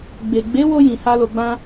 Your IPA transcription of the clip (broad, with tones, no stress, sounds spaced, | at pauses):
ɡ͡b e˨ ɡ͡b e˨˦ w o˧ j ĩ˧ h a˦ l o˧ ɡ͡b ã˦